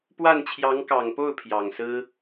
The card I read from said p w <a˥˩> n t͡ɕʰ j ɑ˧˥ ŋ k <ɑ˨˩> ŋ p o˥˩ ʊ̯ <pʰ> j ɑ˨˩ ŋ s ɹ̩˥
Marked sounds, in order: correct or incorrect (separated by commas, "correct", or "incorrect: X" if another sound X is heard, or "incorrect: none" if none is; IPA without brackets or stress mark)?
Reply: correct, correct, correct